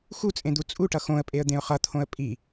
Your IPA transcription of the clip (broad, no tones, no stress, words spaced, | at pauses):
xut͡sʼẽd̪u t͡sʼuʈʌ xõə̯pʼeə̯d̪ẽʊ̯ χʌt̪ʰõə̯ pʼi